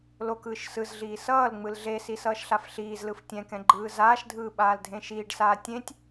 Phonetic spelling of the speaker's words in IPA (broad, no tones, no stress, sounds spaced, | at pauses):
l o k ɯː ʃ s ɯ z ɮ iː s ʌː l ŋ͡m ɯ l ɮ e s i s ʌː ʃ ɬ a f ɬ iː z l ɯ f tʲ ɛ̃ k ɛ̃ ɡ͡ǃ ɯː z aː ʃ dʱ ɯː ɓ aː l dʱ ẽ ʃ iː ɖ s aː tʲ ẽ tʲ